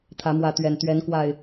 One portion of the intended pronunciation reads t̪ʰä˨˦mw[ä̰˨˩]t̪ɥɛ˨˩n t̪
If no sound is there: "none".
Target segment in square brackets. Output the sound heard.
ä˨˦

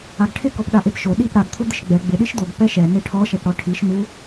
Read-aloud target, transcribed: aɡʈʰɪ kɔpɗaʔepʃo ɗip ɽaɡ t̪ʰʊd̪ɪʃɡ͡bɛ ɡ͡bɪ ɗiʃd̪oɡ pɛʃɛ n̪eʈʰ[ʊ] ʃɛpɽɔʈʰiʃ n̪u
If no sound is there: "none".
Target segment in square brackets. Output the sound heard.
ɔ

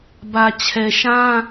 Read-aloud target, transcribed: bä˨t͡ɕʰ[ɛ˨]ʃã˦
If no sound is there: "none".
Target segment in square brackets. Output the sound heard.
ɛ˨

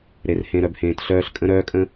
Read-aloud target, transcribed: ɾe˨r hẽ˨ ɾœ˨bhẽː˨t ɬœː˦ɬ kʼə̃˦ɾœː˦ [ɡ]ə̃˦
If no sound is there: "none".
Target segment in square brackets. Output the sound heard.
kʼ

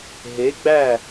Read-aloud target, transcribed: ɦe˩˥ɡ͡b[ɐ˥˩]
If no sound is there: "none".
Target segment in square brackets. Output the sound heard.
æ˥˩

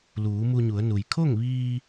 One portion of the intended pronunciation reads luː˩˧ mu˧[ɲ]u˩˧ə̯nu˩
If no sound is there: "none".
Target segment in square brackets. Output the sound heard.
ɲ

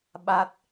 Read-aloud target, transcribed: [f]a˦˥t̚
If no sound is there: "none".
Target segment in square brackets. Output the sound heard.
ɓ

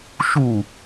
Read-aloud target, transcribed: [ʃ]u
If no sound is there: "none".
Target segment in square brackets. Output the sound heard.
ʃ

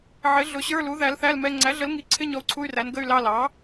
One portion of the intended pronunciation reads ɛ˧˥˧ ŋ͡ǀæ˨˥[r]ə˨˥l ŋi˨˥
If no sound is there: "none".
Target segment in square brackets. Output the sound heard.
ɮ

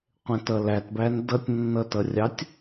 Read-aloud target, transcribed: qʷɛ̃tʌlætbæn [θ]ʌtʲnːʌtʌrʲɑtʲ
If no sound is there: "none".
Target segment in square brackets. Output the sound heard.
d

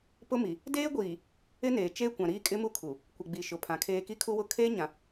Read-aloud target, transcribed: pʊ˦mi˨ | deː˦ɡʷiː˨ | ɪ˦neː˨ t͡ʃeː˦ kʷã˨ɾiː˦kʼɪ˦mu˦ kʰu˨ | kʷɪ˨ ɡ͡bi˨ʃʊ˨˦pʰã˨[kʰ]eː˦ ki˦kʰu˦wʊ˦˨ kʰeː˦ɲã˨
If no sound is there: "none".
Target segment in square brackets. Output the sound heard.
kʰ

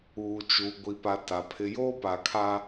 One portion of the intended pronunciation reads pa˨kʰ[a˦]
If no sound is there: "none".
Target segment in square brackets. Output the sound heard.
a˦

